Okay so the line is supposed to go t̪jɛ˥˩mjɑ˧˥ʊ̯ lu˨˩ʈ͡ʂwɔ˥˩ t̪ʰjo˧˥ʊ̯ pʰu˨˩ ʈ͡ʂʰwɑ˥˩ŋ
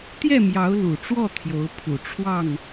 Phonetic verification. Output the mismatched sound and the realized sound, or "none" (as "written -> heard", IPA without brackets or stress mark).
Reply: none